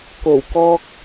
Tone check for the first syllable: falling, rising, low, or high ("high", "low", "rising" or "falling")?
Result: low